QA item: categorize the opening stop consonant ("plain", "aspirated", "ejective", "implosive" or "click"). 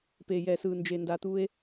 plain